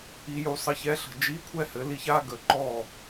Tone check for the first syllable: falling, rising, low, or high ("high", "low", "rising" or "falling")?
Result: low